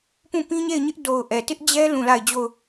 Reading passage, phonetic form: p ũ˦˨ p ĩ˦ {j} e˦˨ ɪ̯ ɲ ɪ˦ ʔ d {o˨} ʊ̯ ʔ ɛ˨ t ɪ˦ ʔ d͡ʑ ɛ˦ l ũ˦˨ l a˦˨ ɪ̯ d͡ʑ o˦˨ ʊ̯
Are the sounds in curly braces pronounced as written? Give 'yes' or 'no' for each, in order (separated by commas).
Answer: no, yes